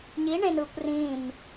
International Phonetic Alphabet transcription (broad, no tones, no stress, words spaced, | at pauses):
ɲiɳẽnɯːkʷ rĩːm